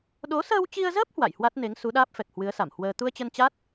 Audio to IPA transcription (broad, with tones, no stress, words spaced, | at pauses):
ɗo˨˦səː˧wt͡ɕi˧ə̯zəː˦˥p̚ hwa̰˧˨jhwa˦˥t̚ne˨˦ŋ su˨˦ɗaː˦˥p̚fɛ˨˩k̚ hwɨ˨˦ə̯sa˧˩mhwəː˧ t̪u˧ə̯t͡ɕə˧nt͡ɕa˦˥t̚